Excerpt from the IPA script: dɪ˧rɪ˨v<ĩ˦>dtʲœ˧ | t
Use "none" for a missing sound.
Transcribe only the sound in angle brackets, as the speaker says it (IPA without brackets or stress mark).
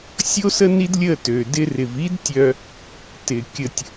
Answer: i˦